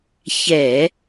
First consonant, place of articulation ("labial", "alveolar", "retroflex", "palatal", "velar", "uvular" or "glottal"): palatal